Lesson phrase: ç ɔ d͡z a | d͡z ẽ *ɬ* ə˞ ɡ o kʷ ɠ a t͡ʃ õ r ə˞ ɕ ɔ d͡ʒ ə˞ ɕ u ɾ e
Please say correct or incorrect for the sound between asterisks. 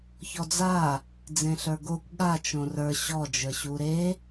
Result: correct